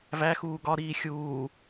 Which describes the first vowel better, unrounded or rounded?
unrounded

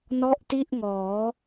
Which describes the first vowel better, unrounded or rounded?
rounded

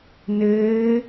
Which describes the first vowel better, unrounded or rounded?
unrounded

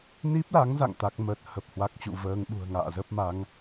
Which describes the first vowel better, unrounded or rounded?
unrounded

